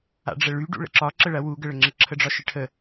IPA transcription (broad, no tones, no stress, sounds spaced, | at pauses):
a̰ ɖ͡ʐ ə ɭ y ɖ ṵ ɭ ə̰ ǁ ɒ ǁ ə ɭ ɐ w u ɡ ə ɭ ə ŋ͡ǁ ə ǁʰ ə ɖ͡ʐ ɒ ʃ ɪ ʈʰ ə